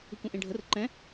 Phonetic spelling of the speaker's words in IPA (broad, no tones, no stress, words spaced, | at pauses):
ɯkũʔẽɖʱər ǃɛ̃